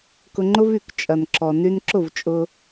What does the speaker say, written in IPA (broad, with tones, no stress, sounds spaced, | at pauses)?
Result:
k ʊ˧ ŋ͡ǃ ʊ˦ v y˨ k t͡ʃʼ ɐ˨ n ǁ ɔ˨ n y˧ n ǁ ʊ˦˨ v t͡ʃʼ ʊ˧